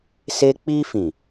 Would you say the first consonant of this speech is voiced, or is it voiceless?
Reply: voiceless